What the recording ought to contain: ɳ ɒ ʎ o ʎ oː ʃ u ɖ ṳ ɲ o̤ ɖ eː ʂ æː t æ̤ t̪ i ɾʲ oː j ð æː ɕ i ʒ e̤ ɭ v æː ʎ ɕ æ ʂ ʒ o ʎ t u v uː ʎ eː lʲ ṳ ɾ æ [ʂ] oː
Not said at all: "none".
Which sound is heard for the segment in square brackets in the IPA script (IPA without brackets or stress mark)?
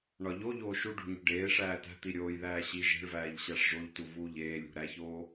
ç